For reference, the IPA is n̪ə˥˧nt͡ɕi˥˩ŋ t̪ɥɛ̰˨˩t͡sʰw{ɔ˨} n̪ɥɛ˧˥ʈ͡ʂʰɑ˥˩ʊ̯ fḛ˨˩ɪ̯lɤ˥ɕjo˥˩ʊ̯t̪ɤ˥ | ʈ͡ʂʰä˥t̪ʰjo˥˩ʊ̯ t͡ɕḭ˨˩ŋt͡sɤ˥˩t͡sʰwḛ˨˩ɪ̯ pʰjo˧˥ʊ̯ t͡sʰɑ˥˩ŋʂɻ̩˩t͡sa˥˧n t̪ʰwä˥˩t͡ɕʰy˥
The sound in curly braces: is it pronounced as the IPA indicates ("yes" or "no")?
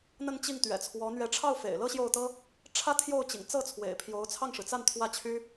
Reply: no